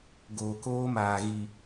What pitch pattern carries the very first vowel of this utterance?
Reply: low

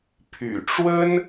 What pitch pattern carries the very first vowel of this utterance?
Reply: low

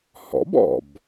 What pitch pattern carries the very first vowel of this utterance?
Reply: rising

